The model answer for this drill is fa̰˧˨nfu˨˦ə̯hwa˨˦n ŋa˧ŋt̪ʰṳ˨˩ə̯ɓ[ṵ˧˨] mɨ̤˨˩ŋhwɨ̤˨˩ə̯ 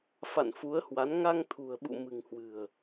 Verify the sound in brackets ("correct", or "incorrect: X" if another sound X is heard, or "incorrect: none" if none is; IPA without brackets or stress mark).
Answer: correct